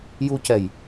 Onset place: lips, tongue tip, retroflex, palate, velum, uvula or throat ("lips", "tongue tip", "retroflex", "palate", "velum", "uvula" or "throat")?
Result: palate